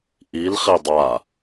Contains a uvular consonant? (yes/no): yes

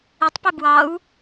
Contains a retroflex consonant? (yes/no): no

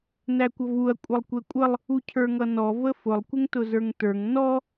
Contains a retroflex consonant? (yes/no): no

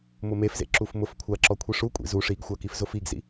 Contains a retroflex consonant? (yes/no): yes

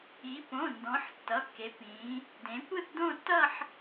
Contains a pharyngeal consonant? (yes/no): yes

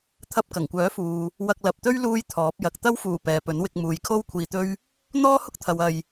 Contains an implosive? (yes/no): no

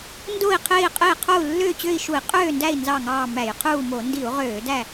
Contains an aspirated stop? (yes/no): yes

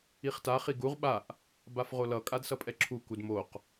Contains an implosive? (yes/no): yes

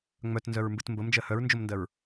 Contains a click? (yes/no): no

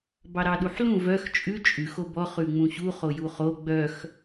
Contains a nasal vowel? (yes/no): yes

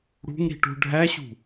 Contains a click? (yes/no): no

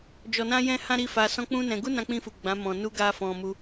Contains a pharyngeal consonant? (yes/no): no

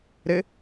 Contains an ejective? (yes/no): no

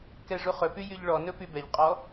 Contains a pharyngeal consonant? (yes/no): no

